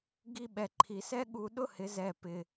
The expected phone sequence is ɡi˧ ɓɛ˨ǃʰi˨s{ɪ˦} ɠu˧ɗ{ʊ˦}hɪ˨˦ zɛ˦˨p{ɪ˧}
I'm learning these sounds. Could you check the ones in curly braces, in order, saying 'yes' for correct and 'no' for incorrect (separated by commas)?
no, yes, yes